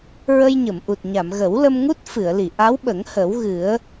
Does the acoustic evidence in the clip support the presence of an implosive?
yes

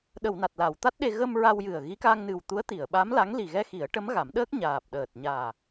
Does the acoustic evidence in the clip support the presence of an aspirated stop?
no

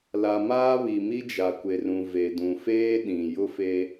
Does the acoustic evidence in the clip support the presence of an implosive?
yes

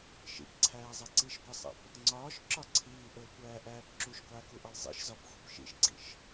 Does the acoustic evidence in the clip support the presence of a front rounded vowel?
no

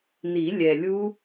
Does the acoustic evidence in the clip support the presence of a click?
no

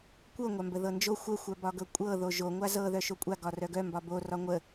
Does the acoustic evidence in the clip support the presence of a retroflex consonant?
no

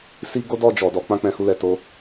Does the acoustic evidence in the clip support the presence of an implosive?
no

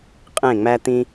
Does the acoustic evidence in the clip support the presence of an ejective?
yes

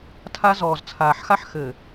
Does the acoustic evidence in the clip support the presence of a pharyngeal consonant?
yes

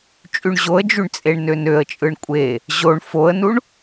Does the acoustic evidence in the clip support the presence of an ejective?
yes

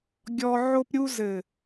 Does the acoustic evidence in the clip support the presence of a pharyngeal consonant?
yes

